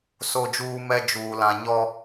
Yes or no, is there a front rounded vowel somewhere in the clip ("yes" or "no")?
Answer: no